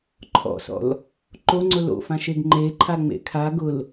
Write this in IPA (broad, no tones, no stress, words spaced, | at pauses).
ǃʰɔ̰sɔ̰l | ǃoŋ͡ǀʊ lo̰fãʃeɡ ŋ͡ǃeǃʰaŋ͡mḛ kʰa ɡʊl